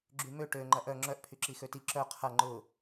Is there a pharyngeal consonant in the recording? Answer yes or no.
no